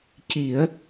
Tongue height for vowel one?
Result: high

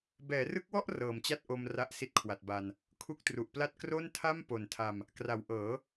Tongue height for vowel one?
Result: mid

